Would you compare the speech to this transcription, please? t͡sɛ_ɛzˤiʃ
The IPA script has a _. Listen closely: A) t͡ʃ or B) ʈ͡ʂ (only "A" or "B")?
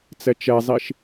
A